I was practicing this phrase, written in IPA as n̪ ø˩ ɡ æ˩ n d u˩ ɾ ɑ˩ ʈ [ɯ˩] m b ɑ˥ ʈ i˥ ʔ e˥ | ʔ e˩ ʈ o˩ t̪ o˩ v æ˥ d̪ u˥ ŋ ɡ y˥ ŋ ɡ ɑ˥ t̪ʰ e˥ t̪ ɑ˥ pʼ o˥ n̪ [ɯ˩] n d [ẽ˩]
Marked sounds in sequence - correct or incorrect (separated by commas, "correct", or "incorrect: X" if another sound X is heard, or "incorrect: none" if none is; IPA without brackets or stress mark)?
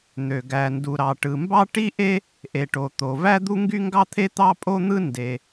correct, incorrect: ɯ˥, incorrect: e˩